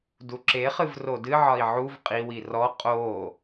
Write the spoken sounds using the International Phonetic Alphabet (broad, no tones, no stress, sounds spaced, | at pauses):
d u ǁ e χ ɨ v r o d ɨ ʕ ɒ i̯ ʕ u v qʼ i w i r ɔ qʼ o